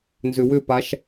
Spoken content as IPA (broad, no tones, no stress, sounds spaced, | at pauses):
n z ʏ w ʏ p a ʃ